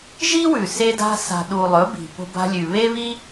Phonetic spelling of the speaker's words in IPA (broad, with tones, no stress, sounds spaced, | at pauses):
ʒ i˦ w ʉ˨ s e˧ d a̤˧ s a̤˨ ɗ u˨ lˠ ɵ˨˦ b i̤˨ p o̤˧ b a̤˧ lʲ ʉ˨ β e˦ β i˦